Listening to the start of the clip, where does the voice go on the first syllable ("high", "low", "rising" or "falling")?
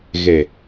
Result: low